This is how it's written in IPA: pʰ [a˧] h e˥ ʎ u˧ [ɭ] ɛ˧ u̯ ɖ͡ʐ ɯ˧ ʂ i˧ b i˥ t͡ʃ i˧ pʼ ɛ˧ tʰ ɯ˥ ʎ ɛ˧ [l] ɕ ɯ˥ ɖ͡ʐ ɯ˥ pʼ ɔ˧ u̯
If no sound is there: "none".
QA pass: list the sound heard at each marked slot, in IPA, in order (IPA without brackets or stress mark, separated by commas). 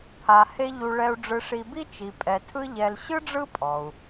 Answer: a˧, ɭ, l